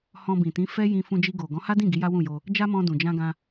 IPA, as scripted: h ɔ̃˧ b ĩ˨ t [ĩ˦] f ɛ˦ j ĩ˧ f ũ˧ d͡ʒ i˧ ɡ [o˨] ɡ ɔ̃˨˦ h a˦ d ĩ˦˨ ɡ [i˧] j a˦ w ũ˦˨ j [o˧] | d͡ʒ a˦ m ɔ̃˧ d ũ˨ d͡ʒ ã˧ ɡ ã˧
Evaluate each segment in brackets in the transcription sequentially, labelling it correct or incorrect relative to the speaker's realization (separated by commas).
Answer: incorrect, correct, incorrect, correct